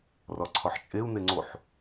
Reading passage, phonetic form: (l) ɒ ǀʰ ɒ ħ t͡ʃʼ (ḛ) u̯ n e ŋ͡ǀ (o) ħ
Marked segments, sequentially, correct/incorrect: incorrect: r, incorrect: e, correct

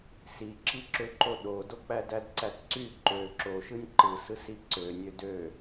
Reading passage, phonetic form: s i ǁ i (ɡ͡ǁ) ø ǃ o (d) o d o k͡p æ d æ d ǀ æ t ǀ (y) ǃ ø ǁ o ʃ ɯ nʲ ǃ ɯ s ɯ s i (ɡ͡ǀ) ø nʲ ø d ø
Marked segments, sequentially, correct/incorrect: incorrect: ǁ, incorrect: ɗ, correct, incorrect: ǀ

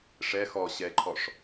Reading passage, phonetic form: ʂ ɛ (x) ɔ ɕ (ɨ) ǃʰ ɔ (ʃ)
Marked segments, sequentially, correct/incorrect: correct, incorrect: ɛ, incorrect: ʂ

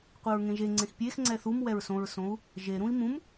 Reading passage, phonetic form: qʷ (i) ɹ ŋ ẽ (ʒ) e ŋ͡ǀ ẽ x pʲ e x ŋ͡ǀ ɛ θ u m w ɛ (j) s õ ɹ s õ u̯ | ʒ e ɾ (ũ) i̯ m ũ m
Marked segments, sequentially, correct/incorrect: correct, correct, incorrect: ɹ, correct

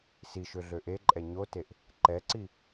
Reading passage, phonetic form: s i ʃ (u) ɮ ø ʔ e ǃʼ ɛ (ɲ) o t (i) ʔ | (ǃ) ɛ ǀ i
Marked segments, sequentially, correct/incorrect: incorrect: ø, correct, incorrect: e, correct

